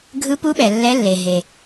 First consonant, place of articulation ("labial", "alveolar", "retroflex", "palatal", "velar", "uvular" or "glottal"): velar